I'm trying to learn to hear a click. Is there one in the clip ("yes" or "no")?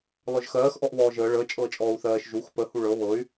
no